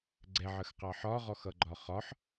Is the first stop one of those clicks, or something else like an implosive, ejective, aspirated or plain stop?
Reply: click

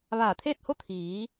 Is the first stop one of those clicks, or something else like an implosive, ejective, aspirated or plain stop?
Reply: aspirated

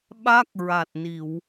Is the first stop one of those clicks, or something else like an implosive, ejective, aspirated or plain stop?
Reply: implosive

